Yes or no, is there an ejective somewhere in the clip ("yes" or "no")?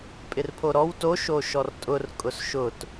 yes